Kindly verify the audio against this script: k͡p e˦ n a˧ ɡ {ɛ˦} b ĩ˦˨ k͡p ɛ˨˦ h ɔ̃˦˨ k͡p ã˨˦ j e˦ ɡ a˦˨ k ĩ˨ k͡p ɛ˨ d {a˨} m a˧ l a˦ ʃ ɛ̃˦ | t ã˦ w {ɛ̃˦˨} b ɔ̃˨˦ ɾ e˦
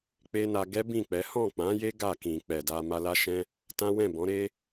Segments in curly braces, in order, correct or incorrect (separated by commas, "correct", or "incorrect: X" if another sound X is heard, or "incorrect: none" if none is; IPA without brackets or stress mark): correct, incorrect: a˧, correct